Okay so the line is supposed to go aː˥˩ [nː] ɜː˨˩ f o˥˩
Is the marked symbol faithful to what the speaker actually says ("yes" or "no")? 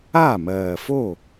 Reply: no